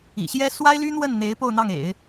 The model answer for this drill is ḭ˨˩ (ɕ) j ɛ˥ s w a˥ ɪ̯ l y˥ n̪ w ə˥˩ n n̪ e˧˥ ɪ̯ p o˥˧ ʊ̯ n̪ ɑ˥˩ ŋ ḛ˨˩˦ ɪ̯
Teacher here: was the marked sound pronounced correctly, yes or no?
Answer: yes